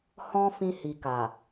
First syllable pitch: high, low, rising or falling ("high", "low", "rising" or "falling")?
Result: high